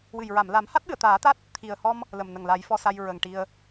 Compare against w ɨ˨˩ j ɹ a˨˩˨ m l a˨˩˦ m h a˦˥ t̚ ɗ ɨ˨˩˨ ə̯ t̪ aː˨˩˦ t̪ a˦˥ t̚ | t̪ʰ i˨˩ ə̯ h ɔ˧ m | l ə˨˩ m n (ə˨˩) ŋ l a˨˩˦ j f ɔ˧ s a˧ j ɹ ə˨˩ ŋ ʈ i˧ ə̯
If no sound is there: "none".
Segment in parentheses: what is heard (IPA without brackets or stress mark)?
ə˨˩